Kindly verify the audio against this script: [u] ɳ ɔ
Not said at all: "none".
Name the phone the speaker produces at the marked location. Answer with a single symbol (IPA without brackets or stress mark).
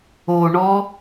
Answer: o